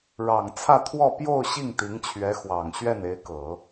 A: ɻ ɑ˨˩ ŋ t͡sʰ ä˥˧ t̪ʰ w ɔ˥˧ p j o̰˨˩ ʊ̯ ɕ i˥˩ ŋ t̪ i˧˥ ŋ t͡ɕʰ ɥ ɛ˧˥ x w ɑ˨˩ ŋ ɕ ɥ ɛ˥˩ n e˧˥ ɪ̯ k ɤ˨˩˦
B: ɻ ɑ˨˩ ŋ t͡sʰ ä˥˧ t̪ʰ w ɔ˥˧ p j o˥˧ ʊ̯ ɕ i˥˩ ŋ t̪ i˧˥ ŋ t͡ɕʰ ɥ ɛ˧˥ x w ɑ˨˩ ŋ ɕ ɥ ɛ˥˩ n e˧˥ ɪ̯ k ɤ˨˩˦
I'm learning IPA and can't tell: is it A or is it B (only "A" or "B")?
B